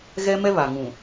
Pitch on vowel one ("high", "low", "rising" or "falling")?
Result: high